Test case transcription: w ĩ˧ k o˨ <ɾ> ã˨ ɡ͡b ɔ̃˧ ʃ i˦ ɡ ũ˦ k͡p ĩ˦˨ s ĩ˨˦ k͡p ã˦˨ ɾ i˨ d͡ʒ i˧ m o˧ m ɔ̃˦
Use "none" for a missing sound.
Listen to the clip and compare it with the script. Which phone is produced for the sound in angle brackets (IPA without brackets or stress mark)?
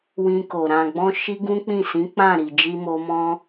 ɾ